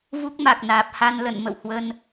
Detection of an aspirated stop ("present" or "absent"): absent